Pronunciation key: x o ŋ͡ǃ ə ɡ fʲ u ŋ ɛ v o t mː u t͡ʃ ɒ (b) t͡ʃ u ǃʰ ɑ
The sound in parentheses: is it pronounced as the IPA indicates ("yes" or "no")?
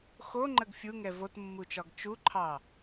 no